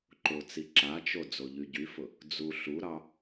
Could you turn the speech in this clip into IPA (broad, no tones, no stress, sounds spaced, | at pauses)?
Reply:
ǃ ʊ t͡s i ǁ a t͡ʃ o d͡z o ʎ y ɟ y f ʊ | d͡z u ɬ u ɾ ɑ